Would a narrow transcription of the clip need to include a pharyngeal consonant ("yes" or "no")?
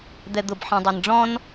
yes